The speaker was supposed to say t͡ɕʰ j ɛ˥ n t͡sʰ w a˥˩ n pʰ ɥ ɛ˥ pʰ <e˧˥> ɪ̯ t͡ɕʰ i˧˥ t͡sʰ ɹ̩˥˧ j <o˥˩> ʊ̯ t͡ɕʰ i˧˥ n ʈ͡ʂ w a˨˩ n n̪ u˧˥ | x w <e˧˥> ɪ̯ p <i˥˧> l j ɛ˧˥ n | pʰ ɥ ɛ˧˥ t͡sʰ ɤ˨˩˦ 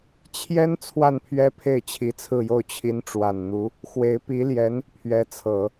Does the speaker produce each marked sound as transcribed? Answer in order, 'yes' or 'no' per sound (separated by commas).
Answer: no, yes, yes, no